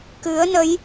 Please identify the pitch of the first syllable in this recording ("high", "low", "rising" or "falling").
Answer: rising